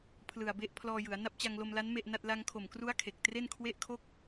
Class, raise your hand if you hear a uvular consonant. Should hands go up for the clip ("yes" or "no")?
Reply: no